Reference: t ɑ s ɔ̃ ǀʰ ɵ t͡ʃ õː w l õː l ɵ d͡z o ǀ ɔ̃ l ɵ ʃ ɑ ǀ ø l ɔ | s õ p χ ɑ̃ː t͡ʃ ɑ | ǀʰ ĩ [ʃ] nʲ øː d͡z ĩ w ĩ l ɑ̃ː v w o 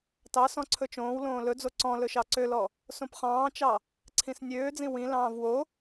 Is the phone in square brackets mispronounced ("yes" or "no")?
yes